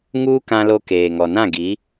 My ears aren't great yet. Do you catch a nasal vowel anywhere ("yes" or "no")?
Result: yes